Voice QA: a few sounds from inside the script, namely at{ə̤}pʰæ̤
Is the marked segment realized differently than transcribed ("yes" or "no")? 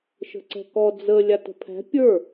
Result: no